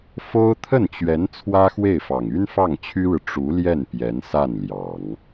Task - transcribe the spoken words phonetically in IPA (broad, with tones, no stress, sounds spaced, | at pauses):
f o˥ ʊ̯ t̪ʰ ə˥˩ n t͡ɕ ɥ ɛ˧˥ n t͡sʰ w ä˥ x w e˥˩ ɪ̯ f ɑ˨˩ ŋ y˥ n f ɑ˥˩ ŋ t͡ɕʰ y˥ ɻ ɻ̩˨ ʈ͡ʂ u˧˥ l j ɛ˥˩ n p j ɛ˧˥ n s a˥˩ n l j ɑ˨˩˦ ŋ